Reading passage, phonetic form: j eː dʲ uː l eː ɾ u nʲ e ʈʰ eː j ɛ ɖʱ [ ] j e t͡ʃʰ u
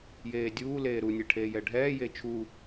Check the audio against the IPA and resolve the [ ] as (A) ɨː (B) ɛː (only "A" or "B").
B